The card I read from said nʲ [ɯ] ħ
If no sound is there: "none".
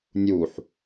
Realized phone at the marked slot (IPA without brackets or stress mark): u